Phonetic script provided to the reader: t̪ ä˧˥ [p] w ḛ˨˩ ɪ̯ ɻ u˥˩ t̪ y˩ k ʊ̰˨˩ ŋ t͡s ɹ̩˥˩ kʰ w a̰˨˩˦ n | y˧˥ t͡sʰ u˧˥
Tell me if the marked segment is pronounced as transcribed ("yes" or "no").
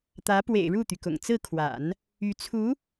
yes